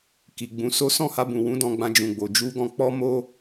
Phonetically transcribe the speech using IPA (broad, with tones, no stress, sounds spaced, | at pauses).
k i˨ ɡ͡b ũ˨˦ s o˦ s ɔ̃˦˨ h a˧ b ũ˨ w ũ˨˦ d ɔ̃˧ ɡ͡b ã˧ d͡ʒ ũ˨ ɡ͡b o˨ d͡ʒ u˧ ɡ ɔ̃˧ k͡p ɔ˦ m o˦